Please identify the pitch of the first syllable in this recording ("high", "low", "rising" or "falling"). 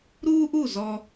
high